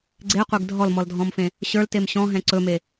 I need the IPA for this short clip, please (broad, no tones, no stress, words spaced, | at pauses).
ɡ͡ǀeqʷeɡ dʱɔlmɔldʱɔ̃mfẽ | ɕə˞ltem ɕɔ̃ɦɛ̃ ǀɵme